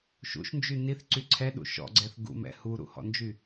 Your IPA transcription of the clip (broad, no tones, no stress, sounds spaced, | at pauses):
ʃ ṵ ʃ n d͡ʒ y n i θ ǀ y ǀʰ ɛ ɗ ṵ ʃ ɔ̰ ɡ͡ǀ ɛ θ ɡ ṵ m ɛ̰ h u ɾ ṵ h ɔ̰ n d͡ʒ y